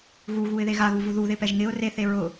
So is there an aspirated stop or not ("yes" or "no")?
no